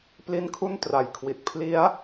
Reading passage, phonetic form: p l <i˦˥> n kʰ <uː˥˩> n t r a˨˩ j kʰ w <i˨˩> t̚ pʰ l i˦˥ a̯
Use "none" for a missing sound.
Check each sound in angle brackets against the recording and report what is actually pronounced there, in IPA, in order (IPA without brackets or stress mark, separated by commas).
i˦˥, u˥˩, i˨˩